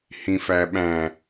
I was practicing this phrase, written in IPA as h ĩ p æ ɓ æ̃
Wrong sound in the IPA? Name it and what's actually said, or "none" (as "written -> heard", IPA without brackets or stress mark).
p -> f